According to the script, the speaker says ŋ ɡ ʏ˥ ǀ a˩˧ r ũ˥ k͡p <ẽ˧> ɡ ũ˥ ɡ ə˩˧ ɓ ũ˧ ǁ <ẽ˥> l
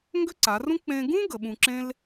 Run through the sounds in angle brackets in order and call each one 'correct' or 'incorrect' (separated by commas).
correct, correct